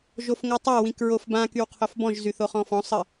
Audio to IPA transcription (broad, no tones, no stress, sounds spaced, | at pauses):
ʒ o f ŋ o tˤ a w ĩ k ɹ o f b ã k y w qʰ o f b ɔ̃ ʒ z y θ o χ ɔ̃ f ɔ̃ sˤ ə